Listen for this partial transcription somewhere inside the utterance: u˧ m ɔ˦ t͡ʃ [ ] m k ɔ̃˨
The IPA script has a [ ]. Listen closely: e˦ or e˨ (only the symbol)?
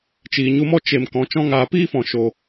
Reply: e˨